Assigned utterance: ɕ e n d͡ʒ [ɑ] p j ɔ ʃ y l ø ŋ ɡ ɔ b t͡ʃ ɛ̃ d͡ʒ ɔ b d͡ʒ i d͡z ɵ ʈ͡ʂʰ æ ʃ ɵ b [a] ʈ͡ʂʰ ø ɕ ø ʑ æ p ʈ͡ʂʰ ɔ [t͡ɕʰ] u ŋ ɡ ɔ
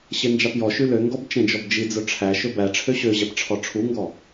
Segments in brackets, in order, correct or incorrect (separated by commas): correct, incorrect, incorrect